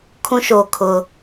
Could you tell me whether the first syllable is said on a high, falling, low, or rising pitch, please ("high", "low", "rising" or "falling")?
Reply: high